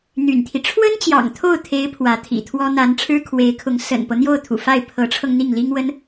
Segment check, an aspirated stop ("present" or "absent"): present